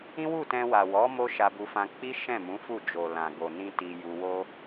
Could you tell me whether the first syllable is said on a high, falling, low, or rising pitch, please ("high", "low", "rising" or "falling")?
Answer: high